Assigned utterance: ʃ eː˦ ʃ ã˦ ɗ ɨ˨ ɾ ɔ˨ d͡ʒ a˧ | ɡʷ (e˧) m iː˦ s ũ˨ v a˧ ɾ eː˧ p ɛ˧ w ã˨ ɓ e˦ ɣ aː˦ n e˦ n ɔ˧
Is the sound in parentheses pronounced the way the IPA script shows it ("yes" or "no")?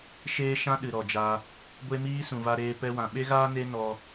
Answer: no